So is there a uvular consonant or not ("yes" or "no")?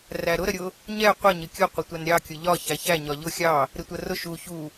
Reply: yes